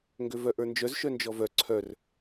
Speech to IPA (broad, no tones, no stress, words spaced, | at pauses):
ŋɡøvœʔə˞nd͡ʒœz ʃœnd͡ʒɔvœ ǀʰœr